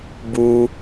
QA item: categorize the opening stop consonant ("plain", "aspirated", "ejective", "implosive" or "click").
plain